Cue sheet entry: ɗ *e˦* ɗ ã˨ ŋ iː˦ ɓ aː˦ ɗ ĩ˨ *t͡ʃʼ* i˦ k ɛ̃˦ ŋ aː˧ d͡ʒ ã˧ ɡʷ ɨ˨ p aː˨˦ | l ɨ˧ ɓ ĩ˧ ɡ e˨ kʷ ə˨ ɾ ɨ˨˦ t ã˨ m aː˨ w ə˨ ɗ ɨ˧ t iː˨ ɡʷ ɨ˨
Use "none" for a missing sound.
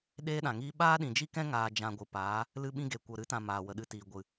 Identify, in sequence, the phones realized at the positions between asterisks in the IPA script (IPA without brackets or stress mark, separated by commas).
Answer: eː˦, d͡ʒ